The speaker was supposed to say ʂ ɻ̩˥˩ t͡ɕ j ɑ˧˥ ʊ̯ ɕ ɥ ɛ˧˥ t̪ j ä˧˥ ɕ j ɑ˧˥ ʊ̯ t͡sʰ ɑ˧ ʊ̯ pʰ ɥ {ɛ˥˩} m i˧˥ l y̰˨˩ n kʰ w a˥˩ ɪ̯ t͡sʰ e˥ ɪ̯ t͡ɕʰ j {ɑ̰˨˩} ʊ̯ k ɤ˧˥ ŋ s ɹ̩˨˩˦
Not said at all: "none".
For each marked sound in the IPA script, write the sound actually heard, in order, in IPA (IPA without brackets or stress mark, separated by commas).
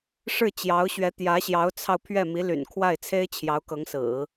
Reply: ɛ˥˩, ɑ˧˥